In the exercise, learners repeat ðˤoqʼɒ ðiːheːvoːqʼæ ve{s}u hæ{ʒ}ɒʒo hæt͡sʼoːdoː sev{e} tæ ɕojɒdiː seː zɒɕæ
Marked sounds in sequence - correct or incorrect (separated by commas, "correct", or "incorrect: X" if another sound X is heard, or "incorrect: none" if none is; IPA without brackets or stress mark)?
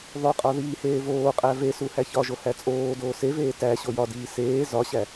correct, incorrect: ç, incorrect: eː